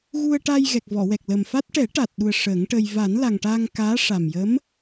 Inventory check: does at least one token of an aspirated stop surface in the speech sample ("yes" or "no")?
no